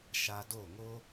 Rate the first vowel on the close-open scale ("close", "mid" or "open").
open